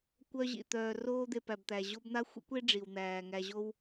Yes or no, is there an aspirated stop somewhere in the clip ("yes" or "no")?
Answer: no